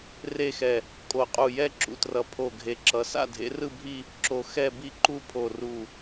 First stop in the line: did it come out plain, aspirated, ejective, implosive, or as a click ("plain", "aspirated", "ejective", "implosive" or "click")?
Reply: ejective